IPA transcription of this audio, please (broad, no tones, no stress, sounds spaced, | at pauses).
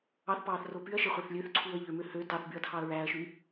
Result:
ɑ θ p ɑː θ r o p y ɐ̯ ʃ e χʷ æ θ lʲ ø θ ǀʰ uː ɐ̯ ʎ ø m ø h ø t ɑ θ b y ɐ̯ tʰ ɑ ɐ̯ ɹ æː ɐ̯ ʃ y